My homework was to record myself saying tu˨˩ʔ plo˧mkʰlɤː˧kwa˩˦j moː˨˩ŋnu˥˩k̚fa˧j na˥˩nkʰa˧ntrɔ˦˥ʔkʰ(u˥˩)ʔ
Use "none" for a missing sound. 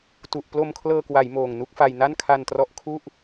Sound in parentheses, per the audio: u˥˩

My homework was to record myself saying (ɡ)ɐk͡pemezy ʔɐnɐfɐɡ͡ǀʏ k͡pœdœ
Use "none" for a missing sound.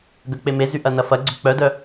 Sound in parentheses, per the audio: ɡ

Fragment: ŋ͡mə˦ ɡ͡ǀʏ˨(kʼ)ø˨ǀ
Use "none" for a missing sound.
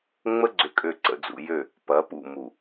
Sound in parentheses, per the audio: kʼ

